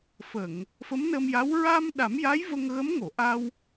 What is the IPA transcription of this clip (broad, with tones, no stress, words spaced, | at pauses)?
fə˨˩˨ŋ | fə˧˥mnə˧mja˧˥w ɹa˧m ɗa˨˩˦mja˧˥j və˧ŋɣə˧˥m ŋo˨˩˨ʔa˧w